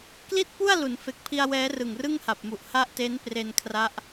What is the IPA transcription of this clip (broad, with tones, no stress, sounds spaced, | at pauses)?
k l i˥˩ t̚ p u˥˩ a̯ l u˩˦ n f e˨˩ k̚ pʰ i˧ a̯ w ɛː˦˥ r ɯ˨˩ ŋ r ɯ˥˩ ŋ h a˨˩ p̚ m u˨˩ ʔ h a˥˩ ʔ t e˦˥ n p r e˧ n kʰ r a˦˥ ʔ